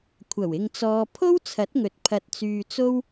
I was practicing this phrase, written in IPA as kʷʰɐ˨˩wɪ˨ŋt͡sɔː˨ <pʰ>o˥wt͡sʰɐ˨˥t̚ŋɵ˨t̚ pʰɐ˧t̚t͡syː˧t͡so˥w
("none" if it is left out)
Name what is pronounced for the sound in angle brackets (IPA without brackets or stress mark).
pʰ